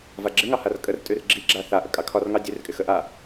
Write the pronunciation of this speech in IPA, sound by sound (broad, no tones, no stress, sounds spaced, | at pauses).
v a ɡ͡ǁ ɪ ŋ ɑ h a r kʼ ə r tʼ ʉ r ɡ͡ǁ i ɡ͡ǁ a θ a ʔ ə kʼ ɑ kʰ ɒ r ŋ ɑ dʲ ʉ r kʼ ɪ x ə ʔ a